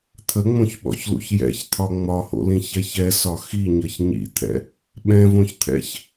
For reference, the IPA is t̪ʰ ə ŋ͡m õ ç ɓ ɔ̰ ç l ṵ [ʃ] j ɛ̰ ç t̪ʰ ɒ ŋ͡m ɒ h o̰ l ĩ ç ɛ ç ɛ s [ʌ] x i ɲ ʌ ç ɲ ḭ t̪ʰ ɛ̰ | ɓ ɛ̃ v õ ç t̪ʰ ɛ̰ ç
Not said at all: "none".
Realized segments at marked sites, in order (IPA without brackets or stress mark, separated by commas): ç, ɒ